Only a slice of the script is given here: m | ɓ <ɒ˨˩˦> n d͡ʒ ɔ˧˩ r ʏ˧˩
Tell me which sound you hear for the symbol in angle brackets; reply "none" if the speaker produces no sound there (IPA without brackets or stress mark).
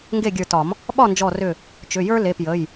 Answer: ɒ˥˩